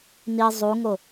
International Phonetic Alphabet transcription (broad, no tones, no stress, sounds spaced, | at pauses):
n i zˤ u ŋ o